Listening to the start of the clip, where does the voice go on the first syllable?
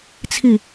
falling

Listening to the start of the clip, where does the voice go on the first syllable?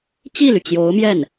falling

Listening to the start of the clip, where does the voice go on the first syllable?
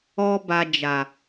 high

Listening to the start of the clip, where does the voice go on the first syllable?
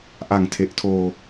low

